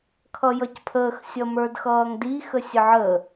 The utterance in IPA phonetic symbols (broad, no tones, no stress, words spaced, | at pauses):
kʰʌjʌcpʰəːx sʲʌmə˞dxʌːŋdi xəsʲəʕə